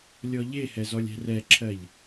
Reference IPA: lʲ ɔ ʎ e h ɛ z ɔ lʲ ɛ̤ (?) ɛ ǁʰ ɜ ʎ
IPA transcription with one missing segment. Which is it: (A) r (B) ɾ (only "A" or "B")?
A